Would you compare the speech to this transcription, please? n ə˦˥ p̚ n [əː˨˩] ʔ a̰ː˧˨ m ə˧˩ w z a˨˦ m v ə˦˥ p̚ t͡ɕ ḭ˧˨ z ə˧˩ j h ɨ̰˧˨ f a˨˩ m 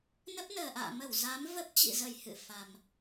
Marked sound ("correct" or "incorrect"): correct